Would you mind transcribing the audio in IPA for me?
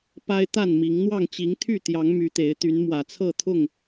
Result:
pa˦ɪ̯t̪a˥˨nmi˨˦ŋ n̪wɑ˥˨ŋt͡ɕi˨˦ŋ t̪ʰy˥˨t̪jɑ˨˦ŋ my˨˦t̪e˨˦ɪ̯t̪y˨˦n mwä˨˩t͡sʰɤ˥˨ t̪ʰʊ˥˨ŋ

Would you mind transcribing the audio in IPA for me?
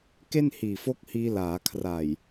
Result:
ke˥˩nhiː˨˩fo˦˥k̚hiː˧ laː˩˦kʰra˨˩j

